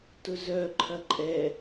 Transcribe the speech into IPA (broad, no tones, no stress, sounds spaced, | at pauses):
t ʊ z œ ǃʰ ɐ ǃʼ ɛ